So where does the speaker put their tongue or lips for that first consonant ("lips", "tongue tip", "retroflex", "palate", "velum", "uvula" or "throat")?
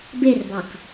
lips